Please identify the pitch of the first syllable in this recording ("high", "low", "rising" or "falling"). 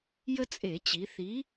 high